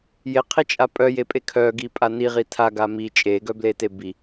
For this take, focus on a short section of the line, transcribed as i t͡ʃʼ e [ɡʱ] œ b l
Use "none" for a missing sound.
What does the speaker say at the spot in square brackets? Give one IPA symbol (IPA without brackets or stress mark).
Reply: ɡ